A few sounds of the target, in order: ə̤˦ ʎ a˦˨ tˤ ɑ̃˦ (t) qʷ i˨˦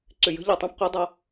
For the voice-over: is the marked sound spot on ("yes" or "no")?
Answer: no